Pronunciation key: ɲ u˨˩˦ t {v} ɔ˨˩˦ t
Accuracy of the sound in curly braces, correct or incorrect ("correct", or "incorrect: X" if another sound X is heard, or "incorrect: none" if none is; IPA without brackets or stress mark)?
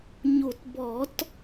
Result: incorrect: b